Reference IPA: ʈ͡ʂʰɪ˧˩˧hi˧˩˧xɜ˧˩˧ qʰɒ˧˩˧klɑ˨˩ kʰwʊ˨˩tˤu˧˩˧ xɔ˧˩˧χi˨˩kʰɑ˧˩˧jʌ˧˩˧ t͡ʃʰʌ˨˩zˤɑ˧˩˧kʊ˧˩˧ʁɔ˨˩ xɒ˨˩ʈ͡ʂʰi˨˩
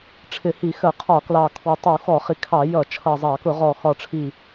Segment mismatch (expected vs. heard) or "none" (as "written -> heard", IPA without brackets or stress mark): none